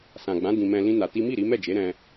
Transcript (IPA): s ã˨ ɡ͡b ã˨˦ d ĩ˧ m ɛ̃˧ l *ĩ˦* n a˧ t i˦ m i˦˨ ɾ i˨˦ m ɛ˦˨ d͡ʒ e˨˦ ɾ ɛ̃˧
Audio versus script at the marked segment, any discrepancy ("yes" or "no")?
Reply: no